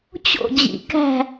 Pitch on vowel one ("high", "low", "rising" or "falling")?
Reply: falling